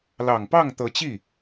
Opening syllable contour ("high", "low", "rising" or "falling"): low